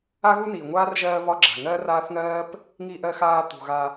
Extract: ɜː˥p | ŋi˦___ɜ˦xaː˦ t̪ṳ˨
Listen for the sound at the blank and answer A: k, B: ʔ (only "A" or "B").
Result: B